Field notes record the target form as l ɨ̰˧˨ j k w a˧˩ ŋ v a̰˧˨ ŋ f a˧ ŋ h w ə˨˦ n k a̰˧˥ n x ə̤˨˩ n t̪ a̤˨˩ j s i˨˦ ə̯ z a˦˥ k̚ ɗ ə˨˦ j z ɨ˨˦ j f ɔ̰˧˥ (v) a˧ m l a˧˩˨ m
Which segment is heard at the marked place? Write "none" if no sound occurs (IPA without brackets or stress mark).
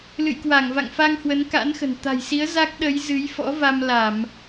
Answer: v